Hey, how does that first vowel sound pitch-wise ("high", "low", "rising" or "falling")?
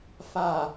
low